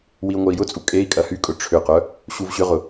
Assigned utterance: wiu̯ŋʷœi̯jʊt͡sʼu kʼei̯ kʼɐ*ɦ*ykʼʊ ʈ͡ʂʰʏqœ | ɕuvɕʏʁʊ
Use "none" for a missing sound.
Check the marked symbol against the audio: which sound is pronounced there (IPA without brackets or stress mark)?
h